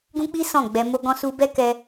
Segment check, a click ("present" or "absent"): absent